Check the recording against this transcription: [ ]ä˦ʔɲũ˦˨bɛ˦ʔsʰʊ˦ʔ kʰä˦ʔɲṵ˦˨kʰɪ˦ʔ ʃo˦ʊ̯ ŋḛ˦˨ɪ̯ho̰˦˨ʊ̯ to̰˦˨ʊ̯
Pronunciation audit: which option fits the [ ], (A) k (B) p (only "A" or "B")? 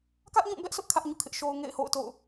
A